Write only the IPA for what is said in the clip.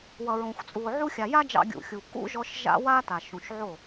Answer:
w ʌ˨ ɹ õ˨ xʷ t͡sʼ u˨ o̯ ʕ u˧ xʲ a˨ j a˦ d͡ʒ ɑ̰˧ ɡʲ ṵ˨ xʲ u˨ kː ṵ˦ ʒ ɔ˧ ʃ ʒ a̰˦ w a˦ t a˨ ʃ ũ˨ ʃ ʕ o˦˨

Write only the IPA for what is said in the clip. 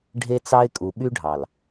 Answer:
ɖʱ e˦ t͡s ɑ˦ ɪ̯ kʼ u˨ ɓ y˦ ɖʱ ɑ˨ l

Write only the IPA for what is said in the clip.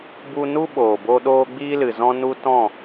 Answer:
b u˦ n u˦ ɓ oː˨ b o˦ ɗ oː˦ ɡ͡b iː˦ l ɨ˨ z ɔ̃˦ n u˦ t ɔ̃˦˨

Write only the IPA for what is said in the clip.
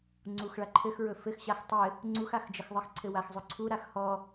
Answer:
ŋ͡ǀ u x ɭ a ǃʰ ɘ x ɹ ɵ f ɘ x ɕ a x tˤ ɘ | ŋ͡ǀ u x a x d͡ʒ ə x ðˤ ɘ x ǀʰ ɘ w a x zˤ ɵ ǀʰ u ɾ a x h ɔ

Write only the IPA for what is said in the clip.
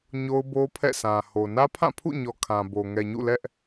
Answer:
ɲ o˦ ʊ̯ b o˦ pʰ ɛ̰˦˨ sʰ ã˨ h o˨ n ä˦ pʰ ã˦˨ pʰ ṵ˦˨ ɲ ɔ˨ kʰ ã˨ b o˨ ŋ ɛ˨ ɲ ṵ˦˨ l ɛ˦ ʔ

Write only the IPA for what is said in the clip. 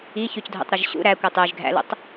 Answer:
i ç y c dʱ ṵ tˤ ɾ y ʒ ɕ ṵ ɾ æ kʷ ɯ tˤ y ʒ ɡʱ æ̰ l ṵ tˤ

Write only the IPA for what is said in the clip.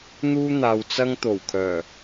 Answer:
n̪ uː˥ n̪ aː˨ w t͡s ɐ˥ ŋ t̪ o˨˩ w kʰ œː˨˩

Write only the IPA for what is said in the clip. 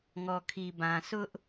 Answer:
ŋ ɔ˨ kʰ i˨ b ã˨ s ʊ˦ ʔ

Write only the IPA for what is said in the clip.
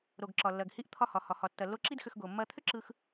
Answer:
ɾ o˩ ɡ ǁ ɒ˩ lː ɐ˩ ɡ h i˧ ʔ t̪ʰ ɒ˧ h ɒ˩ h ɒ˩ h ɒ˩ tː ɐ˩ lː o˧ ǁ i˥ d x ʏ˧ x ɡ o˩ mː ɐ˧ t̪ʰ ʏ˥ ǁ ɯ˧ x

